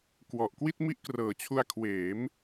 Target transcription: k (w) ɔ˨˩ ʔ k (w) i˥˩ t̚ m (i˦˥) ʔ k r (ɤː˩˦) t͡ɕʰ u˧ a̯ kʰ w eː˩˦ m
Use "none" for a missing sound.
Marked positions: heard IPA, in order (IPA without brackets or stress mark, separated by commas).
w, w, i˦˥, ɤː˩˦